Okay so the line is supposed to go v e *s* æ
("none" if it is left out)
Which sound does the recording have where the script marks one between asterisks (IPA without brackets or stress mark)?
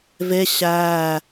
ɕ